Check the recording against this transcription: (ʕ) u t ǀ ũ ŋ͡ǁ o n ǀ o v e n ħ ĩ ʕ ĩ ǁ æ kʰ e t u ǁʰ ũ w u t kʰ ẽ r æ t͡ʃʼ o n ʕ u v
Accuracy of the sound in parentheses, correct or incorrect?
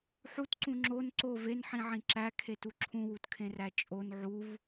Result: incorrect